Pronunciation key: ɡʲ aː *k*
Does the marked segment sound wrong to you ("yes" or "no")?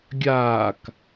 no